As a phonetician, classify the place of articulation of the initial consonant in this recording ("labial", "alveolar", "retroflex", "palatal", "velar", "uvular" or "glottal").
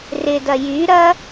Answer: alveolar